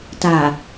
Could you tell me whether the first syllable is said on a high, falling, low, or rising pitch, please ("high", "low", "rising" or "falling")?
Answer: low